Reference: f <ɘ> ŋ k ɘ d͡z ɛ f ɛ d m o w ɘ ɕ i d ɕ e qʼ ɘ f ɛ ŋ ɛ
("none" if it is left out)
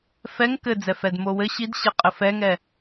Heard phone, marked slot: ɛ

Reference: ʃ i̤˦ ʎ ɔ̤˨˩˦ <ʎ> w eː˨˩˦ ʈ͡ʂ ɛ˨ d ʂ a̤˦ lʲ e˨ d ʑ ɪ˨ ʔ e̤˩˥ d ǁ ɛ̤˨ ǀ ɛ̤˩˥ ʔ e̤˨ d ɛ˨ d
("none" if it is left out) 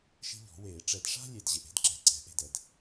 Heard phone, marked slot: none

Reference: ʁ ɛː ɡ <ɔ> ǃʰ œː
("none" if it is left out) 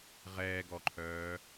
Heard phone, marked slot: ɔ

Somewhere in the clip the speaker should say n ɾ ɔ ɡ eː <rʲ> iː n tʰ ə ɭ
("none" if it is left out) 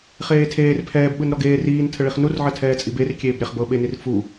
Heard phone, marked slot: r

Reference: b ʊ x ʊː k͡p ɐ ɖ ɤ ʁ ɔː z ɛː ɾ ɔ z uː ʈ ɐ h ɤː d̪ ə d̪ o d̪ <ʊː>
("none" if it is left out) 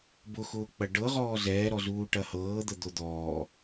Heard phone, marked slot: ɔː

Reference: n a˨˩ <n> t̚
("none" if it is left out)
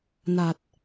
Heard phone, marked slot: none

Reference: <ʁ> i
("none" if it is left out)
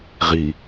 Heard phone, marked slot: ʁ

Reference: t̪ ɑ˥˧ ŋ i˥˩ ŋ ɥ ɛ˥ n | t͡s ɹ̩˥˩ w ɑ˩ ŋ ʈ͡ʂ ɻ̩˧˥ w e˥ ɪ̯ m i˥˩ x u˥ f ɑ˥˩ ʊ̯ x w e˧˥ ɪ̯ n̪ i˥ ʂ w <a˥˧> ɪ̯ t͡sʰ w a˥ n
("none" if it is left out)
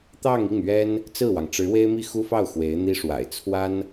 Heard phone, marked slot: a̰˨˩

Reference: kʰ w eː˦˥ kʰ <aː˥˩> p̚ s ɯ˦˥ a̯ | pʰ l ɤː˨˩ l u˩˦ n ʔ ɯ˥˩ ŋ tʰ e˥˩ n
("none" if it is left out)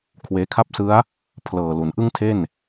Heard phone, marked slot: a˥˩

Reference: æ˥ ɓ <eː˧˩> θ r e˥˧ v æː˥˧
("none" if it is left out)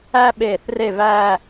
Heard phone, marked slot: eː˧˩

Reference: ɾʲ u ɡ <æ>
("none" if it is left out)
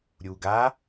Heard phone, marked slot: a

